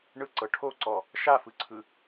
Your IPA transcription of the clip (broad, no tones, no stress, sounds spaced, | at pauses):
ɳ ɯ ǀ ɤ ʈʰ o ǀ ɔ | ʃ a f ɯ ǀʰ ɯ